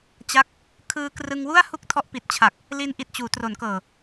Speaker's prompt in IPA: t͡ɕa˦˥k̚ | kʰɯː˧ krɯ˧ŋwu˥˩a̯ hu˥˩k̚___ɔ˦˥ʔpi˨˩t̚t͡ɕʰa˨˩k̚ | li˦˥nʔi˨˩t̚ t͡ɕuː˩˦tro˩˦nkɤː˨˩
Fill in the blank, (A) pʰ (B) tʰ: B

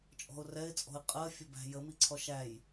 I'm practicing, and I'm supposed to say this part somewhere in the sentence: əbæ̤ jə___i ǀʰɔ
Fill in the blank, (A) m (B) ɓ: A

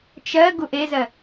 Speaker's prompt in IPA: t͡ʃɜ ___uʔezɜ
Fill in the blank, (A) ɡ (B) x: A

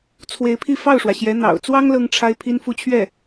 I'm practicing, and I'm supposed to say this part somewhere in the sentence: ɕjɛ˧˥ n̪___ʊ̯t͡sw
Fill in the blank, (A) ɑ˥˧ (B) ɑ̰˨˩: B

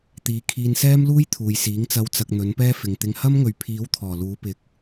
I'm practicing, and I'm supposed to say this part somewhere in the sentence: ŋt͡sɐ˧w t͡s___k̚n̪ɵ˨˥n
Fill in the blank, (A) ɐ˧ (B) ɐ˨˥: A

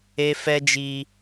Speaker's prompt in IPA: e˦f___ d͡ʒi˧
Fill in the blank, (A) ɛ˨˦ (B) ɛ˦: B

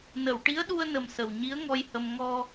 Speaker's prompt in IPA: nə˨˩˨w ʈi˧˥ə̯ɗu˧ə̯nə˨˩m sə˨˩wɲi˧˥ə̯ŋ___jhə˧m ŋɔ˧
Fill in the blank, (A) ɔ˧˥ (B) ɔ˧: B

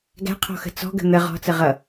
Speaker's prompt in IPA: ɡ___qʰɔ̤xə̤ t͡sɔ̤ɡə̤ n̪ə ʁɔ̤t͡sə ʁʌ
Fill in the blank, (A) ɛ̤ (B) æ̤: B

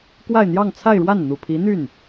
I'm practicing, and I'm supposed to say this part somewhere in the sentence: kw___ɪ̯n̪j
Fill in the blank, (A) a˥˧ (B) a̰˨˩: A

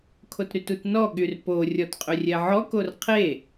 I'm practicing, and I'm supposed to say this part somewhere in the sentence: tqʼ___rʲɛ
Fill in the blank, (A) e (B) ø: B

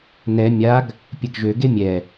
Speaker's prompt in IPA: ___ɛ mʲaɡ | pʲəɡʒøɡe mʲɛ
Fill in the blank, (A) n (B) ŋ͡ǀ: A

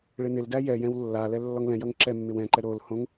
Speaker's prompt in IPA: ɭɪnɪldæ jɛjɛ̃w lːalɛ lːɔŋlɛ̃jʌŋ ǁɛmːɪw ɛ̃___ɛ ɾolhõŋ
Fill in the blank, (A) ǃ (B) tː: A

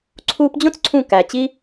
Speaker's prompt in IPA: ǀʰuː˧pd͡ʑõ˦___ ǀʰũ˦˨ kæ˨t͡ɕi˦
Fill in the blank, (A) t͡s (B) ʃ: A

